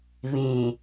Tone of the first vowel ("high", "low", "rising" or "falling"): low